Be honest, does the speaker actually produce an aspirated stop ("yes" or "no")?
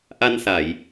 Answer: no